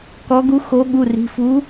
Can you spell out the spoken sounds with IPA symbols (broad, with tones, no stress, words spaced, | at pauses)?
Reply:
kɔ˨˦ɡu˨˦xo˨˦ɠu˩˧˩ ri̤˩˧˩fuː˨˦